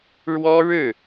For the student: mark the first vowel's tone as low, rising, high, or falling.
high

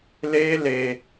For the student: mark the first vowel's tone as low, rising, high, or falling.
high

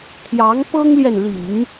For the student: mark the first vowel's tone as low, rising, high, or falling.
rising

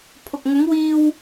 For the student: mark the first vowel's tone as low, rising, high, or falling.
low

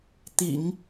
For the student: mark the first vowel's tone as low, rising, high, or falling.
low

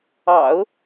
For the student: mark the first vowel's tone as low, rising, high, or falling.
low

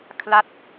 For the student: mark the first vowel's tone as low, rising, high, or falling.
falling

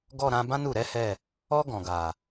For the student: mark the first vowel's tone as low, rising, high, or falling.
falling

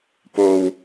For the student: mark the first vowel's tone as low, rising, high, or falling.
low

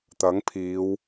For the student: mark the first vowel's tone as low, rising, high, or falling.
rising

